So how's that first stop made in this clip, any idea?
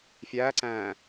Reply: click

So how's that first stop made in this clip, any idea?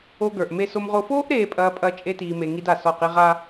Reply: plain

